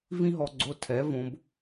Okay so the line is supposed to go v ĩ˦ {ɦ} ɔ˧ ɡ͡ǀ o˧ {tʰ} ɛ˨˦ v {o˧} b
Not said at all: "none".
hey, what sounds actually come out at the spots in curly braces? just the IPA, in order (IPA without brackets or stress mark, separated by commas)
ɦ, tʰ, õ˧